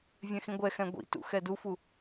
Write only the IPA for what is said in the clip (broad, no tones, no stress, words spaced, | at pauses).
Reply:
vʲɛ̃xĩɡʷɛxɛ̃ ɡʷḭtṵ xɛdufu